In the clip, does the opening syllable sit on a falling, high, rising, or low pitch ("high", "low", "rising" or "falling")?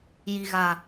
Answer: low